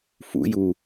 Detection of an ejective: absent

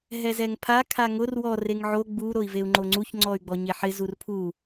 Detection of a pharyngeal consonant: present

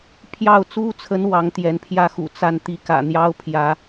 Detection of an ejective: absent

